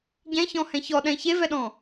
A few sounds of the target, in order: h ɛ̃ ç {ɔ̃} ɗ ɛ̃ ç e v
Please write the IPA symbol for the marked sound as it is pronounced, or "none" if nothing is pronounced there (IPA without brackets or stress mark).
ɔ